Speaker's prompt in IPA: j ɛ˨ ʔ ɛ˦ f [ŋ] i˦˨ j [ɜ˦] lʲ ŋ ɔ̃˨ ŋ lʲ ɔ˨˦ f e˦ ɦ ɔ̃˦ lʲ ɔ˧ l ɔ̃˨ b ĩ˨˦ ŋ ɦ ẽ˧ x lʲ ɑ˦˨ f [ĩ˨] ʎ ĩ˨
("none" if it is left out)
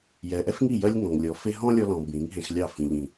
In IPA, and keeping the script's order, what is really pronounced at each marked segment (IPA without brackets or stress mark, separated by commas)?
ŋ, ɜ˦, ĩ˨